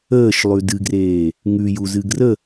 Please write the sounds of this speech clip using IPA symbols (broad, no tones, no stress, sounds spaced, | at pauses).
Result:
əː ʃ lˠ ʉ d ɨ ɡ r eː | ŋ ʉ j u z ɨ ɡ r ə